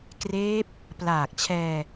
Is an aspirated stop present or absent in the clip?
present